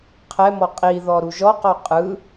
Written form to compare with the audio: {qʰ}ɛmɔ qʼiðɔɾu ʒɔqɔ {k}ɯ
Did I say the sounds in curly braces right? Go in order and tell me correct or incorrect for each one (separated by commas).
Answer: correct, incorrect